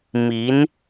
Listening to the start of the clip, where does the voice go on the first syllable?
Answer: rising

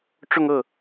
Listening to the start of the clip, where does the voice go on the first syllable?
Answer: falling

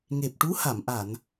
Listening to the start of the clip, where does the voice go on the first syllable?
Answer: low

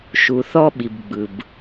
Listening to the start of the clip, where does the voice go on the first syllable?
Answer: low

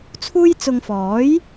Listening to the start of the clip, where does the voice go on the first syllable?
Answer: high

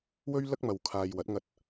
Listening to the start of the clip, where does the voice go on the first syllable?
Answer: high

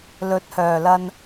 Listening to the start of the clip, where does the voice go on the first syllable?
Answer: rising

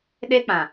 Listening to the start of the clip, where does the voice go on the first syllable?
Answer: high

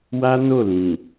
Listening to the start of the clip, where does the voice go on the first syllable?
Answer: high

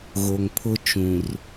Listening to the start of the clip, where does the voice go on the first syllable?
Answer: low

